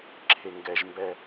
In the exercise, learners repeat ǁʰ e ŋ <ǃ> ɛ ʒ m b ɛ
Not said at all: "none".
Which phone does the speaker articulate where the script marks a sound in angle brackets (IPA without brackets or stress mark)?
ɡ